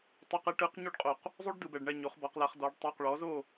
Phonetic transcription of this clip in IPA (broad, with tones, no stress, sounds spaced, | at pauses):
tˤ ɤ˧˥˧ q ɛ˧˥ ʈ ɯ˧˥ q ɲ u˥ ɖ qʼ o˧ q | zˤ u˥ ɖ d ɯ˧ b ɛ˧ ɖ ɳ ɛ˥˧ ɲ o˧˥ χ b ɔ˧˥ q l a˧˥ χ d ɔ˧˥ ɖ tˤ o˧˥˧ q ɭ ɔ˧˥ z o˥˧